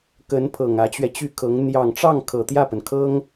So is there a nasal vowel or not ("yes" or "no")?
no